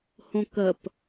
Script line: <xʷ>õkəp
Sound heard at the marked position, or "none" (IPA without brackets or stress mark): h